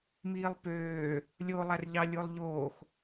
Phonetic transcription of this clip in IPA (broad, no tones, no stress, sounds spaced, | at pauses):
m iː lˠ p øː | lʲ o lˠ æ r ʎ ɑ lʲ o lˠ ʎ oː x